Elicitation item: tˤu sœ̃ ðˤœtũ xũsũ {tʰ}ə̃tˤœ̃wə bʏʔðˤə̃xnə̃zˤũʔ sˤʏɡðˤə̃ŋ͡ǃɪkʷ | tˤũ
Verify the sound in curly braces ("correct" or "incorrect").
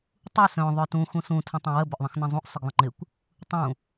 correct